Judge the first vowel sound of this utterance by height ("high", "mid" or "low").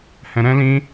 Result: mid